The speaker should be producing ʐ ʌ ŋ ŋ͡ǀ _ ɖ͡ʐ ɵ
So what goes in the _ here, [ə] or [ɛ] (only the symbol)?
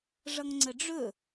ə